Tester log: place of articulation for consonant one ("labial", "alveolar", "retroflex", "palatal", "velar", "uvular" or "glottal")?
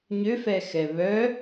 palatal